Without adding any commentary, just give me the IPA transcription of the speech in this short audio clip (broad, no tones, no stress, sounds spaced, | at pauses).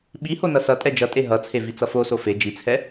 ɓ i h o n ʌ s ʌ tʼ ɛ d͡ʒ ʌ tʼ e ɦ ʌ t͡sʰ e v i t͡s ʌ f o s o f e d͡ʒ i t͡sʰ ɛ